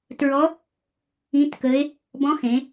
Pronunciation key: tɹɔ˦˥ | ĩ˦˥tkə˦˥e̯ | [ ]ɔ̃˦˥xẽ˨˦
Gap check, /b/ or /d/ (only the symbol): b